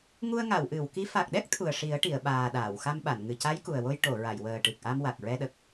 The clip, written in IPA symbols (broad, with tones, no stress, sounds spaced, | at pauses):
ŋ u˧ ə̯ ŋ a˨˩˨ w ʔ ɨ˨˩˨ w k i˧˥ f a˨˩ k̚ ɗ ɛ˦˥ k̚ t̪ʰ u˨˩ ə̯ ʂ i˨˩˦ ə̯ ʈ i˨˩˨ ə̯ ɓ aː˨˩ ɗ aː˨˩˨ w x a˧ m ɓ a˨˩˨ n ŋ ɨ˨˩ c a˧˥ j k u˨˩ ə̯ w o˧ j ʈ o˨˩˨ ɹ a˨˩˨ j w əː˨˩ ʈ ɨ˨˩ k̚ ʔ a˧ m w a˨˩ k̚ ɹ ɛ˧ ɗ ə˨˩ k̚